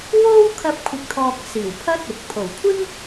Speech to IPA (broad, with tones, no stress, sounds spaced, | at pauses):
w o˥ w kʰ ɐ˧ p̚ kʷʰ ɪ˨ k̚ t̪ʰ ɔː˨ k̚ s iː˨˩ w pʰ ɐ˥ t̚ ʊ˨ k̚ pʰ o˨˩ w kʷʰ ɪ˥ ŋ